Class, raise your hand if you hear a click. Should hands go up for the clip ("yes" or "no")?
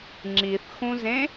yes